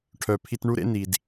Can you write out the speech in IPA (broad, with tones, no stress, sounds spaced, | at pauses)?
ʈʰ œ˨ pʰ i˧ t ɳ u˦ ɾ ḛ˦ n i˨ d